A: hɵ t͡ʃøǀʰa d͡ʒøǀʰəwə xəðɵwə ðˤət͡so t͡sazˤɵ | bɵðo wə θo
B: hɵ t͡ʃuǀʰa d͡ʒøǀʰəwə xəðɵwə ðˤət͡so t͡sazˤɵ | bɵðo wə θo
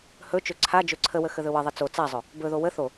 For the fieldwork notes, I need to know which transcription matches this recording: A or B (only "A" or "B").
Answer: A